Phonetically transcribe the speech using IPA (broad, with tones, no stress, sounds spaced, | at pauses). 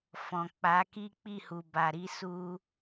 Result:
f ɔ̃˨ k͡p a˨˦ k i˦ k͡p i˦˨ h u˨ b a˨ ɾ i˧ s u˧